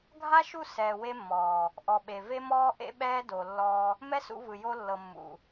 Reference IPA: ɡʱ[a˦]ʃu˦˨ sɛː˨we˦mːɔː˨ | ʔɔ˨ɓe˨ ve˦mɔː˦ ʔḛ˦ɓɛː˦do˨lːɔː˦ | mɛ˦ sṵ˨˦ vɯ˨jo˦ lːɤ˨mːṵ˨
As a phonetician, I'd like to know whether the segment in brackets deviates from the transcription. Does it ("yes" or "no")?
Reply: no